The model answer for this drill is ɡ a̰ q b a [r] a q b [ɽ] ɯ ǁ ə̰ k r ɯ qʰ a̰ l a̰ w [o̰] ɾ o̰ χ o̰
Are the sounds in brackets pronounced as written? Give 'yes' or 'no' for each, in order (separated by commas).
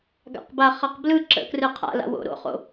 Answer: no, no, yes